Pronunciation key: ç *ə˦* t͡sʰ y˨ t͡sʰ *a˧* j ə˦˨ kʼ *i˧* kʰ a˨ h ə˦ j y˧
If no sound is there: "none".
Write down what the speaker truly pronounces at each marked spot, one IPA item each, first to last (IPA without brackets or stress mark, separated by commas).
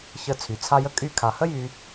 ə˦˨, a˧, y˧